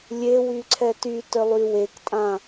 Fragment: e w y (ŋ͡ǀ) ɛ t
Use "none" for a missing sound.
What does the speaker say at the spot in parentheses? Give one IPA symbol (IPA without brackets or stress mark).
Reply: ǀʰ